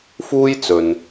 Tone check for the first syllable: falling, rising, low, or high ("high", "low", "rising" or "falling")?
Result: high